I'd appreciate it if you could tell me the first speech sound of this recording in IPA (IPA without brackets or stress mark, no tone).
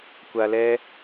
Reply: kʷ